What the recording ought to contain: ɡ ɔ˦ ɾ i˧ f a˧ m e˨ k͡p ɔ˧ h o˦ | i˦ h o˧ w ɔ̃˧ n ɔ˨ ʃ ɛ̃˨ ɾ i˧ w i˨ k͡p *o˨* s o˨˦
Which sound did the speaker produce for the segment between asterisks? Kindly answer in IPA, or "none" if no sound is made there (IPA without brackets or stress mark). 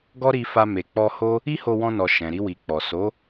ɔ˨